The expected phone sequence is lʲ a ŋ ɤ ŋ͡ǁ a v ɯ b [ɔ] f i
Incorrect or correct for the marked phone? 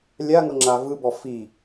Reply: correct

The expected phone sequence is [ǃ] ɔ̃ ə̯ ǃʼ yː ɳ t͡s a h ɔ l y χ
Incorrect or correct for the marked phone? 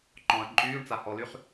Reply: correct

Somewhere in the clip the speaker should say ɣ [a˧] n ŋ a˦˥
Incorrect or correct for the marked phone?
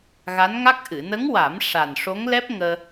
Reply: incorrect: a˧˥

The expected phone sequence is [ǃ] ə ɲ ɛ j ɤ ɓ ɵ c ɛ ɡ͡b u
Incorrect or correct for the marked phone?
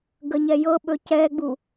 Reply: incorrect: ɡ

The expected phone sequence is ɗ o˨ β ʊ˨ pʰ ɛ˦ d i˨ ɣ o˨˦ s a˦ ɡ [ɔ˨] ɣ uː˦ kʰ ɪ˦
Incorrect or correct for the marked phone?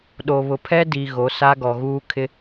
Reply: correct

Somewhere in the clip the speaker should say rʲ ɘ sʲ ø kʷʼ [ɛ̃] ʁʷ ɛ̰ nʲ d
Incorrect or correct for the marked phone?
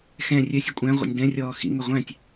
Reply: incorrect: æ̃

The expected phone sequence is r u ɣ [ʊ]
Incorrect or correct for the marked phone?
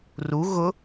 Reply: correct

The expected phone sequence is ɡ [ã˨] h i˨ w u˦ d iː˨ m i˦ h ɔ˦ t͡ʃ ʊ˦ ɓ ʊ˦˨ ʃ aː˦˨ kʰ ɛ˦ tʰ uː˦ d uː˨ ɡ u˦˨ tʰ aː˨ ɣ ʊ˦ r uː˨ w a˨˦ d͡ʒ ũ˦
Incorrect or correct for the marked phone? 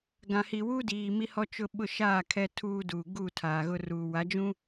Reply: correct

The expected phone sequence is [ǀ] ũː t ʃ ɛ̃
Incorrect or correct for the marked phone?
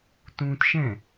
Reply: incorrect: t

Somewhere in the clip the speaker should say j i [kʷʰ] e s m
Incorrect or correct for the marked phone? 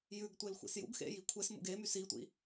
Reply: correct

